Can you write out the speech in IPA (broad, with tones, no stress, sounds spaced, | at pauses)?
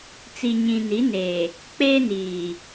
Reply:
t͡s i˨ ɲ ĩ˨ n i˨˦ n eː˨ | k͡p eː˦ n iː˨